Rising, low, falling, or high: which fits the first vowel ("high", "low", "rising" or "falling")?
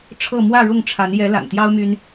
falling